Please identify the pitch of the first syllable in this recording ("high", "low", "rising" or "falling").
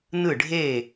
falling